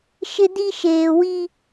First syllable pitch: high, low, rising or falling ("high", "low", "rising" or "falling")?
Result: high